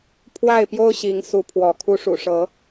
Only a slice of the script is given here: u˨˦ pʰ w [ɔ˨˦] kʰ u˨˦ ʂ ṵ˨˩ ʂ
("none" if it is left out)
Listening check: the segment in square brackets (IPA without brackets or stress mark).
ɔ˨˦